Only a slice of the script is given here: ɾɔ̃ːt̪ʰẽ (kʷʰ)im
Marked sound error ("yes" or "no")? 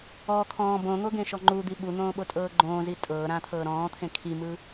yes